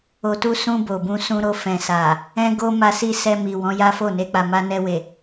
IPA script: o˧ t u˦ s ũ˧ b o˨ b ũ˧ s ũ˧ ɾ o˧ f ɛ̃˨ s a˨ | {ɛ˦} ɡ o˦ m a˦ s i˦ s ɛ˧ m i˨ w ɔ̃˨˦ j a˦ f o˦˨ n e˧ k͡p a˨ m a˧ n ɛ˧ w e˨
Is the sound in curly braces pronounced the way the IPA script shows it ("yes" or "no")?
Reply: no